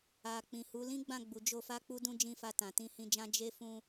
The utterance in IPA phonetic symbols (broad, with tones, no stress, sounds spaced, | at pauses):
a˨ k͡p ĩ˨ h u˨˦ l ĩ˦ ɡ͡b ã˦˨ ɡ͡b u˨ d͡ʒ o˧ f a˦ k͡p u˦ d ũ˦ d͡ʒ ĩ˦˨ f a˧ t ã˨ t ĩ˧ h ĩ˧ d͡ʒ ã˦ d͡ʒ e˦ f ũ˦